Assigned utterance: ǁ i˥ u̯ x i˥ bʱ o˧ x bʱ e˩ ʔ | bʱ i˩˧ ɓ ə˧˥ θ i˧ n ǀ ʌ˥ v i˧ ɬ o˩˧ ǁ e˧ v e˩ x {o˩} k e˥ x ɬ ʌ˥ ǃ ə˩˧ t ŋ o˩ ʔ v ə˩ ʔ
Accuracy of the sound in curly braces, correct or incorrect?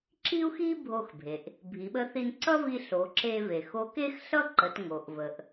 incorrect